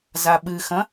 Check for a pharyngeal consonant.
absent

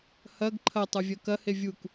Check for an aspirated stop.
present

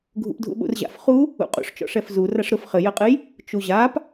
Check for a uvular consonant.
present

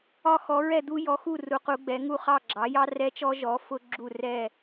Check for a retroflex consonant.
absent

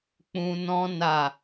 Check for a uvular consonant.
absent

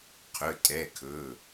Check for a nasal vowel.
absent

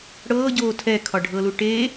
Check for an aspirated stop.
present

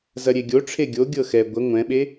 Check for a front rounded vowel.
absent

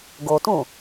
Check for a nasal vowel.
present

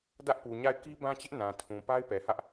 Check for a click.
absent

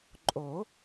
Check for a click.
present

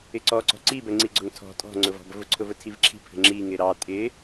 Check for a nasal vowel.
absent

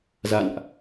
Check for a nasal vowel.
absent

